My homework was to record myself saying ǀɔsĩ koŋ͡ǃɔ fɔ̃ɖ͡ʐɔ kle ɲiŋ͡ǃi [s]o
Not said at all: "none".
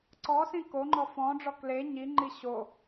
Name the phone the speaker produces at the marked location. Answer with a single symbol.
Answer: ɕ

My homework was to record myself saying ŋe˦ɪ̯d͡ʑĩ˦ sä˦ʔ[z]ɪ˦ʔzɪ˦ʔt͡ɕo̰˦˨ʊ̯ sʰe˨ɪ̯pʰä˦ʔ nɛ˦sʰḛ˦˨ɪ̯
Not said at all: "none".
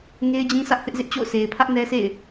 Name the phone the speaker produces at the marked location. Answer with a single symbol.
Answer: θ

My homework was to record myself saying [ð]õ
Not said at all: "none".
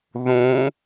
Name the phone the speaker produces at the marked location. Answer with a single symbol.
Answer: ð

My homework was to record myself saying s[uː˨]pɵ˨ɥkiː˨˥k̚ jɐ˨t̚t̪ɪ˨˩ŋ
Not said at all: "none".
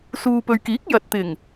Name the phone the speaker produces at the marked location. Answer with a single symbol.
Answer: uː˨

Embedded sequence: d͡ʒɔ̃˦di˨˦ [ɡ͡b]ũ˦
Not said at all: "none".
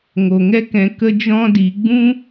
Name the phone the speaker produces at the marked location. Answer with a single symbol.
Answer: ɡ͡b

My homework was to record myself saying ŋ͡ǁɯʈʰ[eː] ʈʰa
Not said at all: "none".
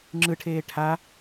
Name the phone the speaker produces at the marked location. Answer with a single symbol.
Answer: eː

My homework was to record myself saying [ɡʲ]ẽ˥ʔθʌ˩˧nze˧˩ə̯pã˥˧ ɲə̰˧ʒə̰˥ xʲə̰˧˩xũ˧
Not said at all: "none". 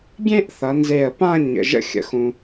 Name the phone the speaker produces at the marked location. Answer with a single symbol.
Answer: ɡʲ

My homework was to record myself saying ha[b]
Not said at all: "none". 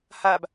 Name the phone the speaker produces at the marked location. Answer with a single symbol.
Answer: b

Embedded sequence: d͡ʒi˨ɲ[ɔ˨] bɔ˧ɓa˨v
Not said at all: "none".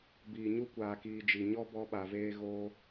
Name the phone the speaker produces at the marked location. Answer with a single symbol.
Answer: ɔ˦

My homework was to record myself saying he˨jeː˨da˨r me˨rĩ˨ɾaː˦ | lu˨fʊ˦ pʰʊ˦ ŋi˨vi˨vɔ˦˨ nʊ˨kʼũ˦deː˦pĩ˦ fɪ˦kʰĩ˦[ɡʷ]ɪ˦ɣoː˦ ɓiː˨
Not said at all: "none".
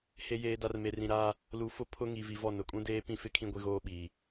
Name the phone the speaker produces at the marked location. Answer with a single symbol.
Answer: ɡʷ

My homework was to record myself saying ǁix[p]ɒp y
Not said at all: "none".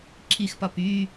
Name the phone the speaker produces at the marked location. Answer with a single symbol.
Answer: p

